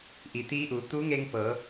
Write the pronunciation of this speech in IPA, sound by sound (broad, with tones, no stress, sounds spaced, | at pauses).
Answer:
ʔ i˩ t̪ iː˧˥ ʔ uː˩˧ t̪ u˧˥ ŋ e˧ ŋ p ɤː˩˧